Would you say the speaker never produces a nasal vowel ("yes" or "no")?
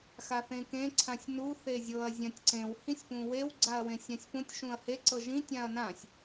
no